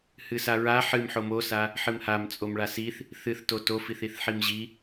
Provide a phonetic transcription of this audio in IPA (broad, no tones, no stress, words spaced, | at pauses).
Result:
hɨsaɹa ħɨm ħomosa | ħɨmhamt͡sʼom ɭasiθ | θɨθto tofiθ iθħimʑi